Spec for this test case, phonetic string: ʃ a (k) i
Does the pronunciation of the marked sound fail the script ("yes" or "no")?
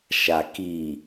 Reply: no